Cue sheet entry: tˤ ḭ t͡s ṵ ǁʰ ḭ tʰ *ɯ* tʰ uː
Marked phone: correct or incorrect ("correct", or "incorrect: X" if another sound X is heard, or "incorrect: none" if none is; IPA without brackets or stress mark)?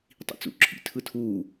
correct